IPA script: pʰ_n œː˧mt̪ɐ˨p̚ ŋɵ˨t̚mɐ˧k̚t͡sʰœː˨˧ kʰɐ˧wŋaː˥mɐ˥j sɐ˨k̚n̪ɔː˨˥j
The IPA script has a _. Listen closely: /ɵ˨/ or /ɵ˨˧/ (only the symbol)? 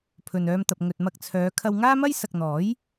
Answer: ɵ˨